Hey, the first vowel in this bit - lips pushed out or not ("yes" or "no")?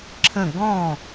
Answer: no